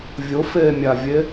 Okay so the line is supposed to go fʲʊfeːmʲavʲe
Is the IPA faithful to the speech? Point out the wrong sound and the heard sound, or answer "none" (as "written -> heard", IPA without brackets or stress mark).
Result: fʲ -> vʲ